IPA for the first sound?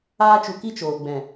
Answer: aː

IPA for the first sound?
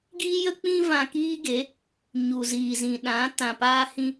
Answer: ɡ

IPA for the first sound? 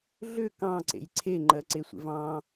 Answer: ɮ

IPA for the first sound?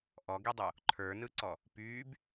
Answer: ʔ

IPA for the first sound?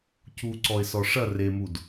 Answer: c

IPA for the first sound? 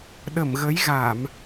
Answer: ɗ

